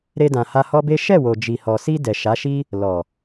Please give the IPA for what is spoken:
ɾ e˧ d ã˨ h a˧ h ɔ˦ b e˦ ʃ ɛ˦˨ w o˨ d͡ʒ i˨ h ɔ˨ s i˧ d ɛ˨ ʃ a˨˦ ʃ i˦ | l ɔ˨

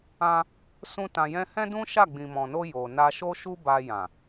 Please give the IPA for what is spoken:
ã˧ | s ũ˧ t ã˨ j ɛ̃˧ h ɛ̃˦ d ũ˦ ʃ a˦˨ ɡ͡b ĩ˨ m ɔ̃˨ n o˧ j o˨ n a˧ ʃ o˦ ʃ u˦ b a˧ j ã˨

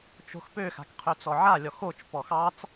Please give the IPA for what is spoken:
t͡ʃ o̤ x p ø x a̤ k qʰ ø t͡s ɔ ʕ a lʲ ɔ x o t͡ʃ p ɔ x ɑ t͡s

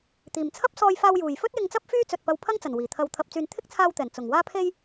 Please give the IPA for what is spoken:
t̪ iː˨˩ m t͡sʰ ɐ˥ p̚ s ɔː˧ j f aː˧ w j uː˨˩ j f ɵ˥ t̚ j ɪ˧ ŋ t͡s ɐ˥ p̚ f yː˥ t͡s ɵ˨ t̚ p ɐ˧ w pʰ ɐ˥ ŋ t͡s ɐ˨˩ n w iː˨˩ t̪ʰ ɐ˧ w t̪ʰ ɐ˨ p̚ t͡s yː˨ n t̪ʰ ɪ˥ k̚ t͡sʰ aː˧ w t̪ ɛː˨˩ n t͡s ʊ˨˩ ŋ w aː˥ pʰ e˥ j

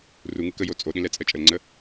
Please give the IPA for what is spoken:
r u ŋ ɯ k ə j o t͡sʼ o ɗ ĩ l ɛ t͡sʼ ɜ t͡ʃʼ ə l ŋ͡ǀ ə

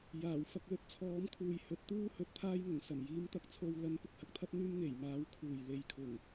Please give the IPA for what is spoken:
j aː˨˩ w f ɐ˧ k̚ l ɵ˧ t̚ t͡sʰ ɔː˨˥ m kʰ uː˨ j h ɵ˨˥ t̚ t̪ uː˥ h ɵ˨˥ t̚ t̪ʰ aː˥ j ŋ ʊ˨˩ ŋ s ɐ˨˩ m j iː˨˥ m t̪ ɐ˨˥ k̚ t͡sʰ o˧ w l ɐ˨˥ n p ɪ˨ k̚ h ɐ˥ k̚ t̪ʰ ɐ˥ t̚ n̪ yː˥ m ŋ e˨˩ j m aː˨˥ w kʰ uː˨˩ j l e˨ j kʰ ʊ˨˩ ŋ

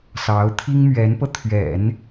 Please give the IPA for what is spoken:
s ɑ˧˥ ʊ̯ t̪ʰ i˥ ŋ m ɥ ɛ˧˥ n p ɤ˧ t̪ʰ ɥ ɛ̰˨˩˦ n

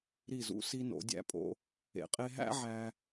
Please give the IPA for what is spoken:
ɾ i˧˩ z ṵ˧ s i˧ n o̰˩˧ dʲ æ̰˧ pʼ o̰˧ | ḛ˩˧ qʼ e˧ ɦ æ̰˥ ʕ æ˧

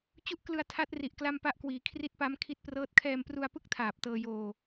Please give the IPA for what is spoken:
t͡ɕ u˥˩ ʔ k l ɯ˧ a̯ tʰ a˦˥ t̚ r i˨˩ ʔ k l a˥˩ m p a˥˩ ʔ k w iː˩˦ kʰ r i˦˥ t̚ p a˦˥ m kʰ i˦˥ t̚ p r ɤː˦˥ t̚ kʰ ɛː˧ m p r u˧ a̯ p ɯ˥˩ k̚ tʰ aː˨˩ p̚ t ɤː˧ j oː˧

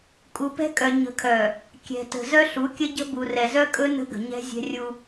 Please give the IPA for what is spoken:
kʼ u˨ p ɛ̤˦ kʼ œ˨ ɲ ə̤˨ kʰ œ˨ | kʲ ɛ̤˨ t ə̤˨ z œ˦ ɬ u˨˦ kʲ ə˦ ɟ ə̤˦ b u˨ r ɛ˨ z œ˦ kʼ ɵ˦ n ə̤˦ ɡ ə̤˨ ɲ ɛ̤˦ zʲ ɛ̤˦ rʲ u˦

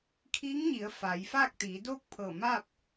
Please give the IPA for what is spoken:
kʰ iː˧˥ ŋ ɲ i˩˧ ə̯ f a˩˧ j f aː˥˨ k̚ t̪ iː˩˧ d oː˥˨ k̚ pʰ ɤː˧˩ m aː˥˨ p̚

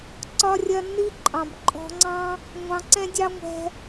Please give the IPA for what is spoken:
ǀ ɒ˦ rʲ ɐ˦ nː i˦ ǃʼ ɑ̃˨ b ǃʼ ɔ̤˧ ŋ͡ǀ ɑ̃˦ | ŋʷ ɑ̃˧ ǀ ɛ̃˦ dʲ ɑ˦ ŋʷ ɛ̤˧

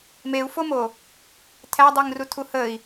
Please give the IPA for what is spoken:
m e u̯ f o m o | tʰ æ dˤ i ŋ r u tʰ u h ə i̯

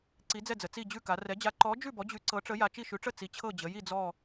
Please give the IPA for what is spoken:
ǀ i˨˥ d͡z ɛ˥˨ d͡z ə˩˧ t͡s i˥˨ d͡ʑ ʉ˥˨ k a˩˧ r ɛ˨˥ d͡ʑ a˨˥ ǃ ɔ˨˥ d͡ʒ ʉ˥˨ b ɔ˨˥ d͡ʑ ʉ˨˥ ǀ ɤ˨˥ ʈ͡ʂ ə˨˥ j a˩˧ t͡ʃ i˥˨ ʃ ʉ˨˥ ʈ͡ʂ ə˥˨ t͡s i˨˥ t͡ɕʰ ɤ˥˨ d͡ʑ ə˩˧ j i˥˨ d͡z ɔ˥˨

